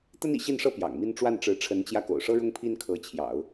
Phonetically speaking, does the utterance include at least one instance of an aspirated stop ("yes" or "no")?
yes